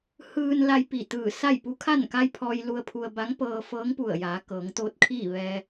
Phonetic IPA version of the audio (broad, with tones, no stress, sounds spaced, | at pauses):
h ɯː˧ n l a˧ j p i˧˩ t̪ ɯː˧˩ s a˥˨ j p u˧˥ kʰ a˥˨ n k a˧ j pʰ ɔː˧ j l u˧ ə̯ pʰ u˧ ə̯ b a˧˥ ŋ p ɤː˧ f ɤː˧˥ ŋ p u˧˩ ə̯ j aː˩˧ k ɤː˩˧ ŋ t̪ oː˧˥ t̚ kʰ iː˥˨ ʋ ɛː˧